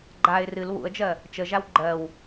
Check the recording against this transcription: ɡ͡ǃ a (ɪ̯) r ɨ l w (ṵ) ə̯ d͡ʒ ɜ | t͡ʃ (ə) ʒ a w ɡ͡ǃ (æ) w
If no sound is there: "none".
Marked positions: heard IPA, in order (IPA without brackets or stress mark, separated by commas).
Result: ɪ̯, ṵ, ə, ɜ